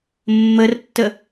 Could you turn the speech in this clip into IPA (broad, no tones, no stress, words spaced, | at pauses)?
mːərtːə